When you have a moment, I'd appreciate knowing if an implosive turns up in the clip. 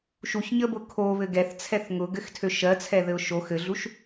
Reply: no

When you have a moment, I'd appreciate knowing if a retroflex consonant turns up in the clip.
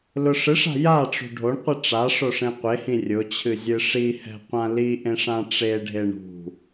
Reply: yes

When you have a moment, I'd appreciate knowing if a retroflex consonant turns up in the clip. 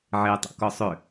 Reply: no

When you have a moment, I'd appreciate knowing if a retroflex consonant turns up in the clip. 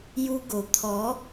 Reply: no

